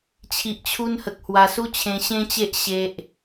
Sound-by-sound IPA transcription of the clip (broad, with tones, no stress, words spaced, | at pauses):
t͡ɕʰi˨ʔt͡ɕʰu˧nhə˨k̚ hwa˧su˦t͡ɕʰẽ˧ ɕẽ˦t͡ɕe˦ʔ ɕe˦ʔ